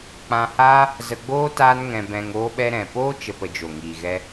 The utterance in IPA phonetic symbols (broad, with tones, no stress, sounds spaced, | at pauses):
k͡p ã˧ h aː˦ | z ə˧ ɡ͡b oː˦ t aː˦ n ŋ ɛ̃˧ b ɛ̃˧ ŋ oː˧ ɓ ɛ˧ ɾ ɛ̃˨ p oː˦ t͡ʃ ə˧ p ə˧ d͡ʒ o˨ ŋ iː˨ ɣ ɛ˧